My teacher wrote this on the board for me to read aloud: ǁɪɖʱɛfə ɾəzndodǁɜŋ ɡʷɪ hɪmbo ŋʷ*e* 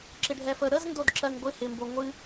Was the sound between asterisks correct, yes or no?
no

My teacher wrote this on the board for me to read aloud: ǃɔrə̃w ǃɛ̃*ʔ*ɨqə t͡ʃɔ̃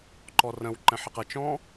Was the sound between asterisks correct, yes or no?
no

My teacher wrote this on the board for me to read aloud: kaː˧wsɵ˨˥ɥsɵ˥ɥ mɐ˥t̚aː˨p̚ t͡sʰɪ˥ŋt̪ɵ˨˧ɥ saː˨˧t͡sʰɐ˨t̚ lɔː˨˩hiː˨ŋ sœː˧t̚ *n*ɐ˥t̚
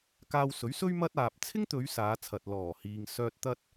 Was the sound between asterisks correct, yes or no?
no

